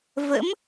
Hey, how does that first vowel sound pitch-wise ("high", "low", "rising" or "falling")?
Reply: rising